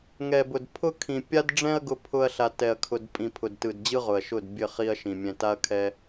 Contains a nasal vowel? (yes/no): yes